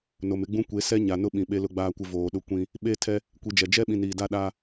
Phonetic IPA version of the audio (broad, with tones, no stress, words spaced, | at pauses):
no˨mɪ˦ɡ͡bũ˦ kʷe˨˦ sɛ˦ɲa˨ nʊ˦ɓĩ˨ ɓe˦lʊ˦ɡ͡baː˦kʷɪ˦ voː˨ɗʊ˦ kʷĩ˦ | ɓe˦tʰɛ˦ | kʷi˨d͡ʒɛ˨ d͡ʒɛ˦ɓĩ˨n iː˨da˦ɗaː˦